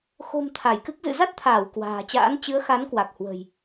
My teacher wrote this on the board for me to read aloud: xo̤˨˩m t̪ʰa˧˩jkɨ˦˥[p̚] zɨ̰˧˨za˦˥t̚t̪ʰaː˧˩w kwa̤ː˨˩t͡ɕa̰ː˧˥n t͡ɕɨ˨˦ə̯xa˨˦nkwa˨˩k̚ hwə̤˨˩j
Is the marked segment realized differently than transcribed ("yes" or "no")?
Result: yes